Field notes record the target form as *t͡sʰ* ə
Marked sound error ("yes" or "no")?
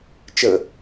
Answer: yes